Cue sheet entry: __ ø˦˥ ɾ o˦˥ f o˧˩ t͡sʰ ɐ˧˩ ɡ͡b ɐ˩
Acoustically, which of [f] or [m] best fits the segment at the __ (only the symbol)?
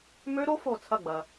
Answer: m